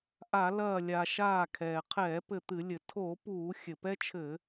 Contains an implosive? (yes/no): no